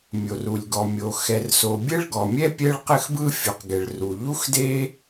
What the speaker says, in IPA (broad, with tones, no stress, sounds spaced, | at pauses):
mʲ o˩ r u˩ lʲ ɡ ɔ˩ mʲ o˩ x ɛ˩ r s o˩ bʲ ɛ˥ ɭ ɡ ɔ˩ mʲ ɛ˥ pʲ ɛ˥ ɭ q ɘ˥ x b ɯ˥ fʲ u˩ q ɡ ɛ˩ ɭ r u˩ ʎ u˥ x d e˥